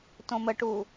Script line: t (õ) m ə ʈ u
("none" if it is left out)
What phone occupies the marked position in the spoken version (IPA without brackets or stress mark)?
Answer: õ